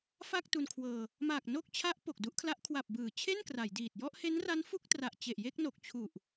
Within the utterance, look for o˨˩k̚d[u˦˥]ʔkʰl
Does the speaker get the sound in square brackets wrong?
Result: no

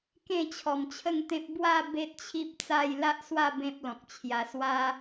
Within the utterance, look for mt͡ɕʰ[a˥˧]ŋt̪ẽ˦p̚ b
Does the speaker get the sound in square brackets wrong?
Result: yes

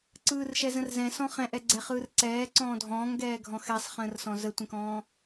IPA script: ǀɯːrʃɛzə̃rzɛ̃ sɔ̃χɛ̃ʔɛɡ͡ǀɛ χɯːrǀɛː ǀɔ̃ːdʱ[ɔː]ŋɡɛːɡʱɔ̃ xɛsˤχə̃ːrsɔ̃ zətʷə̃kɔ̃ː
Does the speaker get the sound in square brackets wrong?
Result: yes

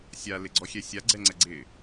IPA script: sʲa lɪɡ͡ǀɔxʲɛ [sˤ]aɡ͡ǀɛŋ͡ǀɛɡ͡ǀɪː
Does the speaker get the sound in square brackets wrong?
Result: yes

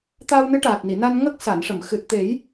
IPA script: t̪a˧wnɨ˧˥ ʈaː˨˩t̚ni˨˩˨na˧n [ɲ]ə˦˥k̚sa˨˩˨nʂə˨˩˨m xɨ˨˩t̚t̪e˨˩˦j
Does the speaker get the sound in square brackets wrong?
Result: yes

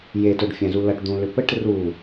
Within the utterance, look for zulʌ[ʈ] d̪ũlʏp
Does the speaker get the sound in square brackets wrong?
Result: no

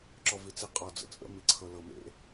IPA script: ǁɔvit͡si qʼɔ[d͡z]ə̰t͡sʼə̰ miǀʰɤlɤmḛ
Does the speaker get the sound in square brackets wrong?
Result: no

